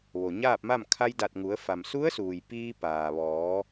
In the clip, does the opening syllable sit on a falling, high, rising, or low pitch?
low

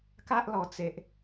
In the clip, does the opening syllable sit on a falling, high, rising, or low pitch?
high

